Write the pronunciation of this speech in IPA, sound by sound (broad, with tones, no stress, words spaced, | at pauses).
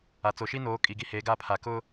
a˨ t͡so˨ʃi˦noː˨˦ kʼi˨ɡi˦ heː˨˦ɡa˦˨pʰaː˨ kʊ˦